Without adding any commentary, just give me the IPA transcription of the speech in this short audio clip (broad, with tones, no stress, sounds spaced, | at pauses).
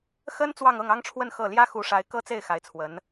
x ə˥ n t͡s w ɑ˥˧ ŋ ɤ˥˩ ŋ ɑ˥ ŋ ʈ͡ʂʰ w ə˥˧ n x ɤ˥˩ l j ä˥ x u˧˥ ʂ a˧˥ ɪ̯ k ɤ˥ t͡s e˥˩ ɪ̯ x a˧˥ ɪ̯ t͡sʰ w ə˧˥ n